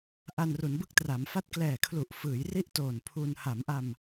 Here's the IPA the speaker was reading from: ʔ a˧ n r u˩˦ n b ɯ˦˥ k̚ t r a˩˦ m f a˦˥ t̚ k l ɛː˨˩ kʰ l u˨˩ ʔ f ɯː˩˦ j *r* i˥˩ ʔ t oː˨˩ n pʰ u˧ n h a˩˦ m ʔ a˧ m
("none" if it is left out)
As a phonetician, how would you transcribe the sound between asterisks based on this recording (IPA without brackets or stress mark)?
r